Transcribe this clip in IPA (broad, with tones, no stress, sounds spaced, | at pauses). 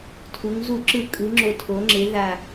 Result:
tʰ u˩˧ ŋ z u˧˩˧ ǁ ɯ˧˩˧ kʼ ɯ˩˧ ŋ͡ǁ o˨˩ tʰ o˩˧ ŋ͡ǁ e˩˧ ð a˨˩